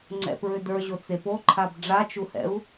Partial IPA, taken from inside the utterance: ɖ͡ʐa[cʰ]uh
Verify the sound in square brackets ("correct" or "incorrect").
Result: incorrect